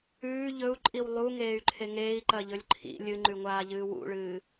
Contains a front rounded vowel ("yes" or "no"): yes